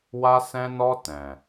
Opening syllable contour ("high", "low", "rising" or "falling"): high